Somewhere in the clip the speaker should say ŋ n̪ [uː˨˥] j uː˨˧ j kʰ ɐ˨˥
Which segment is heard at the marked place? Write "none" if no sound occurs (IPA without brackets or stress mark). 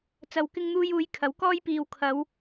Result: uː˧